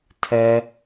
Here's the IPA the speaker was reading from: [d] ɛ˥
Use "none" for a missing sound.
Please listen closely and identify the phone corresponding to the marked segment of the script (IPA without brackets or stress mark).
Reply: tʰ